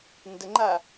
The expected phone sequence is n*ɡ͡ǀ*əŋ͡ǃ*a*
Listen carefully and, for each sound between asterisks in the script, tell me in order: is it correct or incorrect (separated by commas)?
incorrect, correct